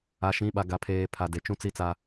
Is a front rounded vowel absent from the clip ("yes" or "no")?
yes